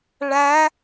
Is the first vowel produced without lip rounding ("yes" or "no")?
yes